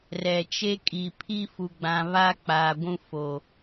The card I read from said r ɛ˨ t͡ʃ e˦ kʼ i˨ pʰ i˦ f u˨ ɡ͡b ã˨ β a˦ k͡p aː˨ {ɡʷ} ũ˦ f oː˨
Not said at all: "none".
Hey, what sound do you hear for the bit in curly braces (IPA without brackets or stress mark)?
ɡʷ